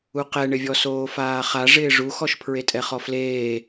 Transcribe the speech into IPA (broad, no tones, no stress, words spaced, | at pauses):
uqɛɳɪvʲɔ soːfaːχa ʐɪːʐuxɔʃ pʰɹetʼɛχɔfleː